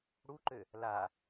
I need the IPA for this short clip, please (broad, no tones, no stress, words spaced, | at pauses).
ɽuǃø | la